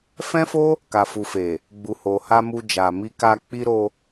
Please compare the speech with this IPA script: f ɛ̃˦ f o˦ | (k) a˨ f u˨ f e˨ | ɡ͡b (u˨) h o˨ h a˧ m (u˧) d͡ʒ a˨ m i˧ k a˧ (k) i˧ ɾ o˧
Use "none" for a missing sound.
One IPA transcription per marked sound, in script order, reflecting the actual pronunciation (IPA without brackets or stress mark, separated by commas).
k, u˨, u˧, k͡p